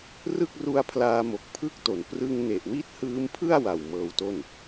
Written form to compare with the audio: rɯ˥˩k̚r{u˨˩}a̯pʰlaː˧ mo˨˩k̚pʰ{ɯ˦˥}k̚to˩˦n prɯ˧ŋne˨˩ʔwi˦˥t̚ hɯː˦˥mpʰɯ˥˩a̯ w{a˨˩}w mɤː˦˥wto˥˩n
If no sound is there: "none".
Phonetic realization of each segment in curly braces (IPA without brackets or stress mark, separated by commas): u˦˥, ɯ˥˩, a˨˩